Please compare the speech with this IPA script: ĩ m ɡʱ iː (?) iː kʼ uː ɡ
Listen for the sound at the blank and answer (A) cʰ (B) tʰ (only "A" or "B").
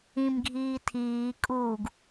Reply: B